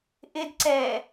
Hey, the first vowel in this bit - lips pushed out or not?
no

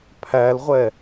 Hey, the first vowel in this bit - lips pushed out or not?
no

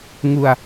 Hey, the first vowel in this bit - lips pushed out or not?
yes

